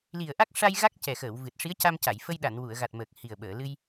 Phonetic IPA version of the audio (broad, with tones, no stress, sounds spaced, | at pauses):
l i˨˩ ə̯ ʔ a˦˥ k̚ ʂ a˧ j ɣ a˦˥ k̚ c ɛ˨˩ x əː˨˩˨ w v ɨ˨˩ t̚ ʂ i˧˥ ə̯ c a˧ m c a˨˩˨ j f ə˧ j ɗ a˨˩˨ n w u˨˩˨ ə̯ ɣ a˨˩ t̚ m əː˨˩ k̚ h i˨˩ ə̯ ɓ əː˨˩˨ l ɨ˧ j